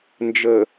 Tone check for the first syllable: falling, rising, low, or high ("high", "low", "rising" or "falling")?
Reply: low